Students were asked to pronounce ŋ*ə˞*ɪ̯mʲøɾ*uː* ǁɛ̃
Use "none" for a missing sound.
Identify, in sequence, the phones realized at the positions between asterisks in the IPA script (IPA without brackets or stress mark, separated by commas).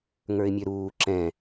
ə˞, uː